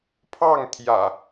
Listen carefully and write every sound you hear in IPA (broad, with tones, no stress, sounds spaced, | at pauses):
pʰ ɑ˥˨ ŋ t̪ʰ j ä̰˨˩